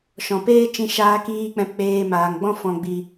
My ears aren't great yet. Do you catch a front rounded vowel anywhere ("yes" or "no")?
no